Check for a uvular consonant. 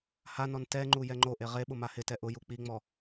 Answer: present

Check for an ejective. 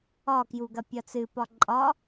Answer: present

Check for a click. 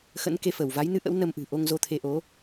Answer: absent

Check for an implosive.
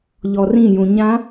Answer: absent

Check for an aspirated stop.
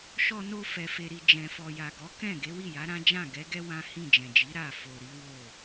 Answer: absent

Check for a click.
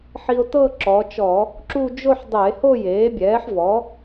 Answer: present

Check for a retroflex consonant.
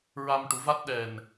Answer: present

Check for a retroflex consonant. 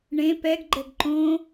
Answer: present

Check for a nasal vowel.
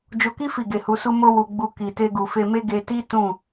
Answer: present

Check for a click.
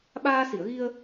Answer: absent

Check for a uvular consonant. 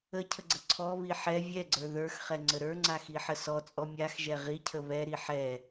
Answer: present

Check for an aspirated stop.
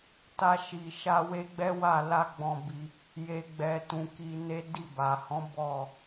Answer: absent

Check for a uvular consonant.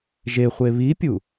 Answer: present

